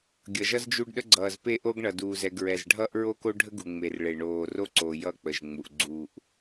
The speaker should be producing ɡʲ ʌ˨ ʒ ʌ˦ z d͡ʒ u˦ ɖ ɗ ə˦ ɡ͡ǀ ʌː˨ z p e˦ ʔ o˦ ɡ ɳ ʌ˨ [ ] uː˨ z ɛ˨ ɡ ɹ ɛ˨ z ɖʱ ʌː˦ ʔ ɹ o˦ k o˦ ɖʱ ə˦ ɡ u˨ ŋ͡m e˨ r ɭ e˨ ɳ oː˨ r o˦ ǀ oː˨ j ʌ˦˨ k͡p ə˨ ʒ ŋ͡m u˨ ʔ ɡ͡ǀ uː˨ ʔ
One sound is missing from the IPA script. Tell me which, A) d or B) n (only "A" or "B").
A